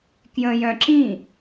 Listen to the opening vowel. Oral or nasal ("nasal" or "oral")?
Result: nasal